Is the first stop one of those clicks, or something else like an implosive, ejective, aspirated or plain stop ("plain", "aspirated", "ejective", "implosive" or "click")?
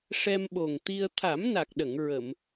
implosive